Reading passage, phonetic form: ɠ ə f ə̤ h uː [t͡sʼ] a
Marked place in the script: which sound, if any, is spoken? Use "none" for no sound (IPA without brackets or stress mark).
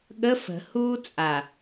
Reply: t͡sʼ